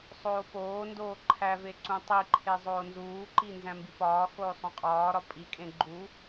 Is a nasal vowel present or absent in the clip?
present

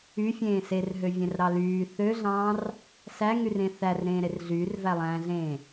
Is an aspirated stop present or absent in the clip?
absent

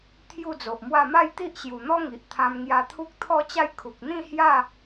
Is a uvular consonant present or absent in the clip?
absent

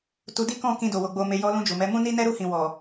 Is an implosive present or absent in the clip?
absent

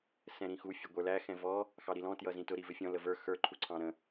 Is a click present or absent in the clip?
present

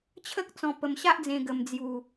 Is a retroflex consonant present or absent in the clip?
absent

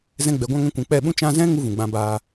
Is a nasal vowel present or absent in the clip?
present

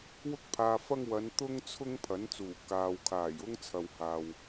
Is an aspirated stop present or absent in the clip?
present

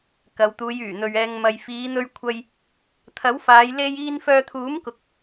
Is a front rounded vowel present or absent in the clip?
present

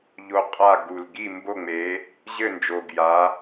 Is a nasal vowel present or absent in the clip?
absent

